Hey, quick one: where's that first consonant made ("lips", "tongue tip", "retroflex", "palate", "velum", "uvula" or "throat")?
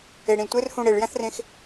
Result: retroflex